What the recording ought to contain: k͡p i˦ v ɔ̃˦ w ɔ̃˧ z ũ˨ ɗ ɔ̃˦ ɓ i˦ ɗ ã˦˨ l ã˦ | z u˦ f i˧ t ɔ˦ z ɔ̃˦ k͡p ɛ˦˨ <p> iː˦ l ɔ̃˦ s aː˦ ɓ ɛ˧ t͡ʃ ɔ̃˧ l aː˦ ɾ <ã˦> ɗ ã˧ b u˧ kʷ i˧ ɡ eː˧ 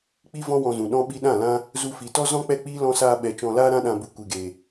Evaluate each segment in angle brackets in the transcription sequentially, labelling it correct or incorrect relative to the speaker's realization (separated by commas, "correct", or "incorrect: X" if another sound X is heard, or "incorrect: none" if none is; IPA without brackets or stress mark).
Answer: incorrect: k͡p, correct